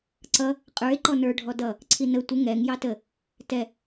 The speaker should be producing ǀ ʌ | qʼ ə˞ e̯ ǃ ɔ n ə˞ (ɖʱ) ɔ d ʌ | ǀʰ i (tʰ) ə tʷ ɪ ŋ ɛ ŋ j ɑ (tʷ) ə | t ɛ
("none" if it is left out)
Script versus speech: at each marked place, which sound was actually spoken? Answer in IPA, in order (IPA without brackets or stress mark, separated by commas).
ɖʱ, n, t